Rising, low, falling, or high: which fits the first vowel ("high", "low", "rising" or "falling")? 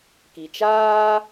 low